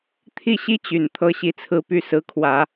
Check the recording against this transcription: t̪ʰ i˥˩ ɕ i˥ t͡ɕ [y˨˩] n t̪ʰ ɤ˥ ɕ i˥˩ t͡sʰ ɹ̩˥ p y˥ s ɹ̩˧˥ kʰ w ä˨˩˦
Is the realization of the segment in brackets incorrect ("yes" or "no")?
no